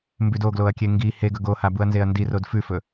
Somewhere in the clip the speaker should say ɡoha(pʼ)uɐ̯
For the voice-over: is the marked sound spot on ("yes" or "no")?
no